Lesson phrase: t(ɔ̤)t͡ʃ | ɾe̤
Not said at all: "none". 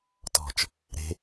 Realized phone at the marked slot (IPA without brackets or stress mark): ɔ̤